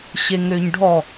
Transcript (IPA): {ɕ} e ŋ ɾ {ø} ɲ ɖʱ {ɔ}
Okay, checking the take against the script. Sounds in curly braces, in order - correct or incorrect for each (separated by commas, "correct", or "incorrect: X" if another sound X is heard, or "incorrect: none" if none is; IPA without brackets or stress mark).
correct, correct, correct